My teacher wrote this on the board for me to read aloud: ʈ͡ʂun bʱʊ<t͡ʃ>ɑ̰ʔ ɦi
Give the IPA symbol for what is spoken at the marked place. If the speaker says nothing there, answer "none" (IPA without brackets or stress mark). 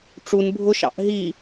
ʃ